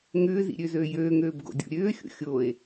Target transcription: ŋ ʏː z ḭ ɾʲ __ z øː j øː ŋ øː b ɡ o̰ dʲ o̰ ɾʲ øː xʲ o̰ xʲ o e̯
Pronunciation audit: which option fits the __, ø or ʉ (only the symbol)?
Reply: ø